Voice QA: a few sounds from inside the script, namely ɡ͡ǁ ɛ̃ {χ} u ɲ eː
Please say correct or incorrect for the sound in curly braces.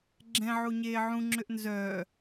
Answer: incorrect